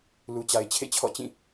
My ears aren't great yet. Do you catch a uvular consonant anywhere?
no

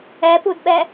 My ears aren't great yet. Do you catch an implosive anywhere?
yes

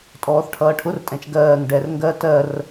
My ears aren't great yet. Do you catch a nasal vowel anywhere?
yes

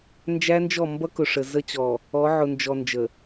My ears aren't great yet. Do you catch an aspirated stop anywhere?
no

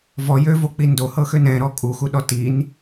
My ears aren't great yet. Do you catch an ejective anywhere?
yes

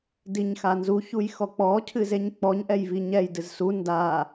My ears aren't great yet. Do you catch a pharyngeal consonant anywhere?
no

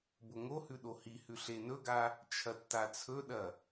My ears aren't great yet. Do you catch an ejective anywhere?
no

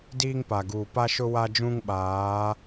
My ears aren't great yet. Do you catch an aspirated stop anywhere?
no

